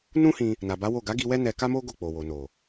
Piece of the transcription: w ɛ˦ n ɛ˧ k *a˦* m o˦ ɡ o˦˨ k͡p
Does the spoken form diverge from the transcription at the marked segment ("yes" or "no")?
no